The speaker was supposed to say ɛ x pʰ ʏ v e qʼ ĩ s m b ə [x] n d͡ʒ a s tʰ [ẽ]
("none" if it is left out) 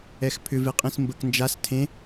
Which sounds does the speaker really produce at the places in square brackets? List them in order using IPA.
k, ẽ

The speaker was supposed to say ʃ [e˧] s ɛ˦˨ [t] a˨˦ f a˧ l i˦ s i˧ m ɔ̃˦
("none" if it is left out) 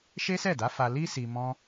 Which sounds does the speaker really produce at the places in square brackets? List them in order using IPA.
e˦, d

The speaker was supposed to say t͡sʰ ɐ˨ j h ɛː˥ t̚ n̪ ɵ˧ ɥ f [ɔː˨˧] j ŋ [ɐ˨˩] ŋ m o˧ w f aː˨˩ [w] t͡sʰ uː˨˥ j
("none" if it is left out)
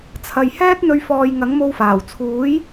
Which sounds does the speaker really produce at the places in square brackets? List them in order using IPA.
ɔː˨, ɐ˨˥, w

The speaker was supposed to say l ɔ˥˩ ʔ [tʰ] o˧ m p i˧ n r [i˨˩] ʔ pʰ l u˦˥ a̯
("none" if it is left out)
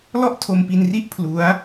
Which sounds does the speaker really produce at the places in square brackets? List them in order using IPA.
tʰ, i˥˩

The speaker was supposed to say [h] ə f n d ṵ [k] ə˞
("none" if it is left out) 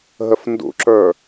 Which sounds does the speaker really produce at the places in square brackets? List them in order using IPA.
ɦ, ǁ

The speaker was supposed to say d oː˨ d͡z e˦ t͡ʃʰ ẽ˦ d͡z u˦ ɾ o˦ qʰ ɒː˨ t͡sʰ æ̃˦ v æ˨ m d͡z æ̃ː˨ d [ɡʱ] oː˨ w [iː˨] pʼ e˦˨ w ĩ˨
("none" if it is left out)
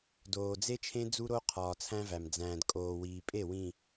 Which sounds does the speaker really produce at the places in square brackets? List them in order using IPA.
kʼ, iː˨

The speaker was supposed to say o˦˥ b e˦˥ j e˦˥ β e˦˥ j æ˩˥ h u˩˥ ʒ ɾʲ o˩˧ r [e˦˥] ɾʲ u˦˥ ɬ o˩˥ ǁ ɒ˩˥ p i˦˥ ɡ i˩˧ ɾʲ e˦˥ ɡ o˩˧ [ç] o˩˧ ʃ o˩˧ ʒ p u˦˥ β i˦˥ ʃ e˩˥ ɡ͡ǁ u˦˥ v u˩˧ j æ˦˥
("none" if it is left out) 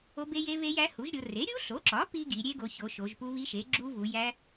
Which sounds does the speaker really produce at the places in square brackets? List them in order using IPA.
e˩˥, ç

